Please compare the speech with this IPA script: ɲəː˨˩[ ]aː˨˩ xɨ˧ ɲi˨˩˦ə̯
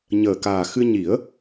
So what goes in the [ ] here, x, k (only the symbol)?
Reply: k